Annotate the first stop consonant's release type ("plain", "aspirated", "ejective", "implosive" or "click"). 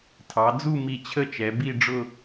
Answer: aspirated